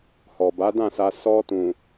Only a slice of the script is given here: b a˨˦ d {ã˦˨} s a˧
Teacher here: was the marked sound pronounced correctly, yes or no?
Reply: yes